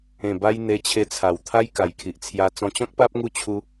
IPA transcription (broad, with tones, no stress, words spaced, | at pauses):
ẽ˨˩ba˧j n̪e˧t͡ɕʰe˧t͡sʰa˨˩wt̪ʰa˦j ka˨˩jkʰi˨ʔt͡sʰja˧ t͡sɔ̃˧t͡ɕɔ̃˦k̚pa˦p̚ŋu˦ t͡ɕʰu˦